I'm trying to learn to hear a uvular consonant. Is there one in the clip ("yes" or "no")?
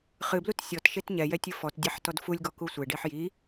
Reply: yes